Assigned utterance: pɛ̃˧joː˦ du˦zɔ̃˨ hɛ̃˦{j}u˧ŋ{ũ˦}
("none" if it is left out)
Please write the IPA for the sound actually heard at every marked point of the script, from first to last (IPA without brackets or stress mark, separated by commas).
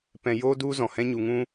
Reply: ɲ, ũ˦